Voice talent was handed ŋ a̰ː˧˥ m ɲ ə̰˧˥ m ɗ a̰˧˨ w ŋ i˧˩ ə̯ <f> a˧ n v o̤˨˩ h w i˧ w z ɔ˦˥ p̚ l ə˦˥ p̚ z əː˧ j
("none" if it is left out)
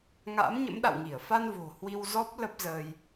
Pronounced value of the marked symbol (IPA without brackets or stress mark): f